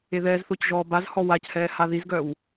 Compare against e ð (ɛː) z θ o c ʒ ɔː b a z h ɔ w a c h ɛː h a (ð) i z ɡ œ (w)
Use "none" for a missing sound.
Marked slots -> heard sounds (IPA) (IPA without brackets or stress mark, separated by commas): ɛː, ð, w